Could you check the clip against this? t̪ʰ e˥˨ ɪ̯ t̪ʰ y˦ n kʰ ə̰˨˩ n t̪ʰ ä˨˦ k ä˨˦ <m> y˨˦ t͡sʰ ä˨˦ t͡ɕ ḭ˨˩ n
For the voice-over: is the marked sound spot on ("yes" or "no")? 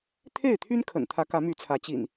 yes